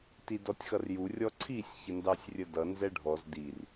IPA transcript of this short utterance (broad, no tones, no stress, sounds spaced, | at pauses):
t i d ɔ tʲ x ʌ r j u rʲ ɔ ǀʰ i sʲ ç ə n d ɑ sʲ rʲ ə d ʌ n z ɛ ɖʱ ɔ z d i r